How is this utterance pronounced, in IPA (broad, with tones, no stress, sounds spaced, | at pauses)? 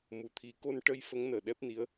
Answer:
m u˨˩˦ t̪ʰ i˨˩˦ k o˧ n ʈ ə˧ j f ə˧˥ ŋ n əː˨˩ ɗ ɛ˦˥ p̚ n i˧˥ ə̯